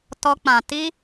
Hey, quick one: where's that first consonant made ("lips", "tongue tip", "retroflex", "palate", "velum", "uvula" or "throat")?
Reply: tongue tip